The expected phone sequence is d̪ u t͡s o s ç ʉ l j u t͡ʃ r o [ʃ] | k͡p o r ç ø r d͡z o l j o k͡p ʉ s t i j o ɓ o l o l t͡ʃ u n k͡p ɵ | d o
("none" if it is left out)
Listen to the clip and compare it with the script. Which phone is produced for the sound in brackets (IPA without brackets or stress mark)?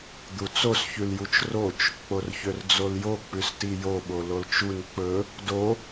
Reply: t͡ʃ